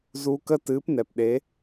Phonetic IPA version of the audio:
z u˧ k ə˦ t ɨ˨˦ p n ɛ˨ p ɗ e˨˦

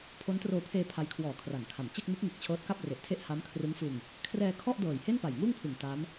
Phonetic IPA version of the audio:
pʰ o˦˥ n t r oː˧ pʰ eː˧ pʰ a˦˥ j kʰ w ɔː˨˩ kʰ r a˩˦ ŋ kʰ a˩˦ m t͡ɕ e˥˩ k̚ m u˦˥ k̚ ŋ ɯ˨˩ k̚ t͡ɕʰ ɤː˦˥ t̚ k a˥˩ p̚ r e˨˩ ʔ tʰ e˥˩ ʔ h a˦˥ m kʰ r ɯ˦˥ ŋ f ɯ˧ ŋ | kʰ r ɛː˧ kʰ ɔ˥˩ ʔ d ɤː˨˩ j h e˥˩ n p a˨˩ j ŋ uː˥˩ ŋ pʰ ɯ˨˩ ŋ t a˦˥ m

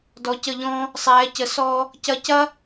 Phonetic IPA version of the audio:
d ɔ˩˧ c ə˧˩ ʎ ɔ̃˧ | sˤ ɛː˩˧ c ə˩˧ s ɔː˧ | c ɐ˧ c ɐ˥

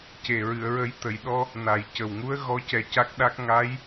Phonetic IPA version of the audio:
c e˨˩ ɹ ɨ˨˩˨ ə̯ ɹ ə˨˩˦ j t̪ ə˨˩˨ j ɗ ɔ˧ | n a˨˩ j c ə˨˩ w ŋ u˧˥ ə̯ ɣ ɔ˧˥ c ɛ˧ c a˦˥ k̚ ɗ a˦˥ k̚ ŋ a˧˥ j

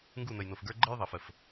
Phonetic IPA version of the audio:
ŋ ɡ u˦˨ n ə˨ j n o˨ f ɡ ə˞˦ ɡ͡ǃ ɤ˦ j ðˤ ɜ˨ f ə˨ f

